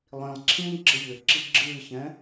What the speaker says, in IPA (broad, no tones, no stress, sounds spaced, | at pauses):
lˠ ĩ lˠ ǁʰ ĩː ɡ͡ǁ ə ʎ ʏ ǁ i ɡ͡ǁ ɨː ç ɛ̃